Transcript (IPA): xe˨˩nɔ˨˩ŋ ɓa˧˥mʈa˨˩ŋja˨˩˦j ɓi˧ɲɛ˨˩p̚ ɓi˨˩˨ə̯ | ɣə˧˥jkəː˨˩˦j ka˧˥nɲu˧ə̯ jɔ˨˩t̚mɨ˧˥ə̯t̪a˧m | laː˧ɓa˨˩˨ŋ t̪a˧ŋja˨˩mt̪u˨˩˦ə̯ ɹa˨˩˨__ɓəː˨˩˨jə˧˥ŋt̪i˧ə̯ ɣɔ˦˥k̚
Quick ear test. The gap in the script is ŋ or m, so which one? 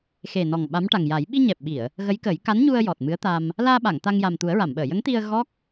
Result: m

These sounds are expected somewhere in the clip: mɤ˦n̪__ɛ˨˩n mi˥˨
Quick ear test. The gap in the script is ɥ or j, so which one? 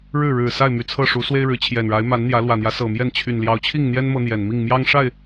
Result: j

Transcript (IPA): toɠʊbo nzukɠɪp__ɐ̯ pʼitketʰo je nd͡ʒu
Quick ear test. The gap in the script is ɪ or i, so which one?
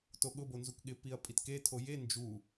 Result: i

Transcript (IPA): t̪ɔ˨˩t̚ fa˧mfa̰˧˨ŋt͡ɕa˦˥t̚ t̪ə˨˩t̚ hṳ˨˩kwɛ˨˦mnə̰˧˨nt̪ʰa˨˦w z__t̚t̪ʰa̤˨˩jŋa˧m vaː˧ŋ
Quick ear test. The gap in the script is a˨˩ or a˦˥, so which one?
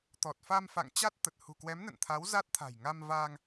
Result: a˦˥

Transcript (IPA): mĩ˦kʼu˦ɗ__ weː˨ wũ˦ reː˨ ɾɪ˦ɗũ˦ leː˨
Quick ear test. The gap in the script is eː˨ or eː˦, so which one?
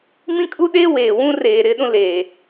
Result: eː˦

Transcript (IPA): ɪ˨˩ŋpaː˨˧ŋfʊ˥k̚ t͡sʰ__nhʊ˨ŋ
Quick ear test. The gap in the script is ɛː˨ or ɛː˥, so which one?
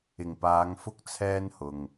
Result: ɛː˥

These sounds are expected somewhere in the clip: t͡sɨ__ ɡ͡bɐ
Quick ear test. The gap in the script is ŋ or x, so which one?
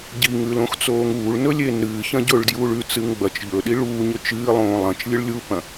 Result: ŋ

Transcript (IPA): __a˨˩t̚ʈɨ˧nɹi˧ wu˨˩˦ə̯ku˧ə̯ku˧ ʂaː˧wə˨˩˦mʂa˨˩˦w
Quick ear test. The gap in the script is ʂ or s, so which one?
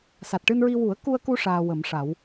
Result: s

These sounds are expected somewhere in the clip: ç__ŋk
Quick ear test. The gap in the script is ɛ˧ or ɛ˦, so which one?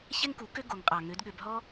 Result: ɛ˦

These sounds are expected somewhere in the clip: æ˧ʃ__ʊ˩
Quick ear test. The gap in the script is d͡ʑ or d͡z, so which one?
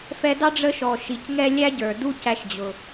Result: d͡ʑ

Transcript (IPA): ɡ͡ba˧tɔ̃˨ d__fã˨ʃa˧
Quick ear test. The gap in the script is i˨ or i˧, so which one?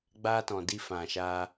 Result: i˧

